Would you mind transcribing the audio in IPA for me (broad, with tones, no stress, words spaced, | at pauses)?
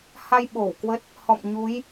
ha˧j ɓo˧˩wkwə˦˥t̚ | hɔ̰˧˨m ɲu˨˦j